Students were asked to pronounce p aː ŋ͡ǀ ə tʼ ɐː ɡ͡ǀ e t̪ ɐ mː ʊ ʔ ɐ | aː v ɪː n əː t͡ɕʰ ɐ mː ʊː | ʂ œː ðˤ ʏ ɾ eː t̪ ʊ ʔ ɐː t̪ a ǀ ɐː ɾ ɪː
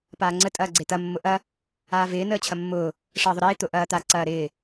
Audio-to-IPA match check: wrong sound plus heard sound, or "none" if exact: œː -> əː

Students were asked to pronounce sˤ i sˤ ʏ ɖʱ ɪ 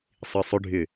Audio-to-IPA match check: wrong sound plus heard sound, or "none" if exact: none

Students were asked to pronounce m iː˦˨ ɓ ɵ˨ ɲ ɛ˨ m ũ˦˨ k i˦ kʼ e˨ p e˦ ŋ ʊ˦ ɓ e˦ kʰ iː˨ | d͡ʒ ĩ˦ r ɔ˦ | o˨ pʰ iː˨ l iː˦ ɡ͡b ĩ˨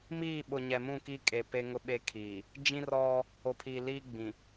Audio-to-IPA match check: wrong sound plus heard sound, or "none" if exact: ɵ˨ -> ʊ˨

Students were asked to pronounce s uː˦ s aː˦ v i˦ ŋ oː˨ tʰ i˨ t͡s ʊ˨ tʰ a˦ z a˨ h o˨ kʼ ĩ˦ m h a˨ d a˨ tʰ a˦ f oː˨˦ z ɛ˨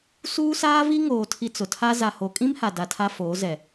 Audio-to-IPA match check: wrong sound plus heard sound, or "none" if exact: none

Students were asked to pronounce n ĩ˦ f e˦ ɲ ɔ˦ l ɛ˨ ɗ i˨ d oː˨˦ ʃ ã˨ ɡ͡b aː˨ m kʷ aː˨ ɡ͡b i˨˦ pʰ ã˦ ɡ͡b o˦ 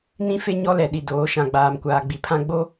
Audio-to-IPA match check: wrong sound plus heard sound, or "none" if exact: none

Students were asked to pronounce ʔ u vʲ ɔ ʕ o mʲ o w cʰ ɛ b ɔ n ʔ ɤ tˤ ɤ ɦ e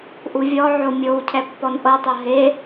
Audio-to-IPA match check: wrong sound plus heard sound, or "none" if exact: b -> pː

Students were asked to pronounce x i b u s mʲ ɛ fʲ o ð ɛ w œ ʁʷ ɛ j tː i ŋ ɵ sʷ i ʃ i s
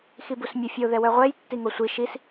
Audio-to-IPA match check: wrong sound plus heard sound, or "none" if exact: ɵ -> o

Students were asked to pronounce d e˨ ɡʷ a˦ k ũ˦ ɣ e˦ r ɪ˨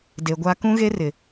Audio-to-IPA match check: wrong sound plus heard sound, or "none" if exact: none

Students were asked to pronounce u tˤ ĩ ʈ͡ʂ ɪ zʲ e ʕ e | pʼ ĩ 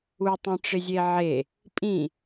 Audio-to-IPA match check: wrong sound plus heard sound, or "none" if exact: none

